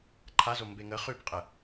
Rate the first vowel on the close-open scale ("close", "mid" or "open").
open